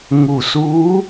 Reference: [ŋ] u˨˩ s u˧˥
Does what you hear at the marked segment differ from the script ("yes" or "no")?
no